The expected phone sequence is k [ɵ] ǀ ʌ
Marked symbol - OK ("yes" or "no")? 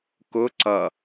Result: no